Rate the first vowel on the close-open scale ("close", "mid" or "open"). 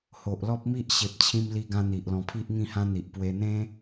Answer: mid